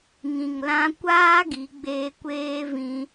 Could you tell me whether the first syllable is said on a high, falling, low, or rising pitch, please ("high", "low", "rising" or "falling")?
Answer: low